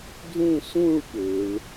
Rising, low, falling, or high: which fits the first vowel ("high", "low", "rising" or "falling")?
falling